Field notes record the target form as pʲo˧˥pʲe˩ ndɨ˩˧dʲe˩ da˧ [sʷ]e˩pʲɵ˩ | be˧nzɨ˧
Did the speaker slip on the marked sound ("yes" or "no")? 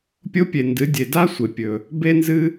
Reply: no